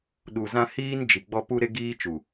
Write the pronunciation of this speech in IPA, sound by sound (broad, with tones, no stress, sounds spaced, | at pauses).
ɗ u˨ z ã˦ h iː˦ n d͡ʒ i˨ ɡ͡b ɔ˦ p u˦ ɾ e˦ ɡ iː˦ t͡ʃ u˨